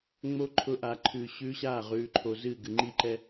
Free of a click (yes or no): no